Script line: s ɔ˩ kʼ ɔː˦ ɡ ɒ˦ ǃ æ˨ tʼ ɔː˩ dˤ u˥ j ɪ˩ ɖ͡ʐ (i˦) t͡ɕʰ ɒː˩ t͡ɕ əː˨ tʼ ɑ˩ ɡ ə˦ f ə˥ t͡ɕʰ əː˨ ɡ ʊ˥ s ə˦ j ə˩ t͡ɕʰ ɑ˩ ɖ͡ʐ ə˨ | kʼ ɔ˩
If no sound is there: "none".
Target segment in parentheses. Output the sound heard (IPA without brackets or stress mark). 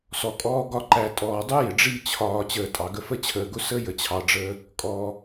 i˦